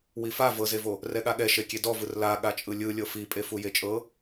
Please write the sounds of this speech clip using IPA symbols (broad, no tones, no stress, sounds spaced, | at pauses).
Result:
w i f a v ɤ z e v o | r ɛ ɠ a ɠ ɛ ʃ e kʲ e d ɔ v ɯ r l a ɠ a t͡ʃʼ ɯ lʲ ɯ lʲ ɤ f i pʼ e f u j e t͡ʃʼ ɤ